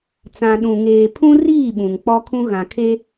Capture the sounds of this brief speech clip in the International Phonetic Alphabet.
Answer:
t͡s ã˨ ɗ ũ˨ ŋ eː˨ pʰ ũ˦ r iː˦˨ ɓ ũ˨ ŋ k͡p ɔ˦ kʰ ũ˦ ɣ ã˨ kʰ e˦

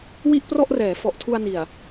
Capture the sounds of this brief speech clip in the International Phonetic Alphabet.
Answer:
w i˥˩ ʔ p r ɔ˥˩ ʔ r ɛː˩˦ f ɔ˨˩ ʔ tʰ u˧ a̯ n i˨˩ a̯

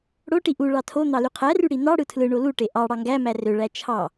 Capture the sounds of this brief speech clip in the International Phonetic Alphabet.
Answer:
ɽ o ʈ i ʔ u ɭ ɑ tʰ o n̪ ɑ l y qʰ æ r y ɽ i n̪ ɑ ɽ ɯ tʰ l ɯ ɳ o l u ʈ e ʔ ɑ ɽ ɑ ŋ ɡ æ m æ r ø ɭ æ t͡ʃʰ ɑ

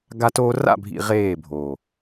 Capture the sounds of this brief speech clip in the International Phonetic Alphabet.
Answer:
ɡ a˦ t oː˦ r a̰˦˨ bʱ ḭ˨ ʁ eː˦˨ bʱ oː˨

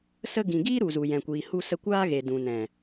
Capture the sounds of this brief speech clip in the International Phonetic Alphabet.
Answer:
s ə˧ ɡ ĩ˨ ɡ iː˦ ɾ u˨ z u˨ j ɛ̃˨ kʷ iː˨ h u˧ s ə˧ kʷ aː˦ ɣ e˨ d ũ˨ n ɛ̃˨

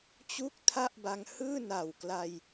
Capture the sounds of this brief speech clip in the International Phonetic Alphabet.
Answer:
t͡ɕ u˦˥ k̚ tʰ a˥˩ ʔ b a˧ ŋ h ɯː˥˩ n a˨˩ w k l a˧ j

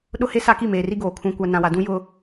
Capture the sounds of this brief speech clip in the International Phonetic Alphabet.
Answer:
ɗ ʊ˦ h e˦ s a˦ k i˦˨ m eː˨ r i˦ ɡ oː˨ kʰ ũ˨ kʷ a˨ n ã˨ w a˨ d ũ˦ j ʊ˦

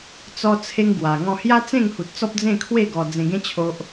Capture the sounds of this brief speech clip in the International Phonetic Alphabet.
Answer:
t͡s ɔ˦ t͡sʰ e˦ ŋ ɡ w a˨˩ ŋ ɔ̃˥˧ h j a˦ t͡s ẽ˥˧ ŋ h u˨ t̚ t͡s ɔ˦ p̚ d͡z ẽ˥˧ kʰ w e˥˧ ɡ ɔ˨˩ d͡z ẽ˨˩ ɡ ẽ˧ t͡ɕʰ o˨ ʔ

